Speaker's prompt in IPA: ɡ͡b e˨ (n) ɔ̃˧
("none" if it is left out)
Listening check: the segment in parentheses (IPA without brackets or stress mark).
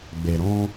ɾ